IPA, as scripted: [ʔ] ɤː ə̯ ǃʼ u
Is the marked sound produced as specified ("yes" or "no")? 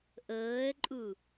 yes